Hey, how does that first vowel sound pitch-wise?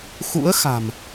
rising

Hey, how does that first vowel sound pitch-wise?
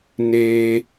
low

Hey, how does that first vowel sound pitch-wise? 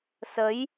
rising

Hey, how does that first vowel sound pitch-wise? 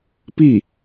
falling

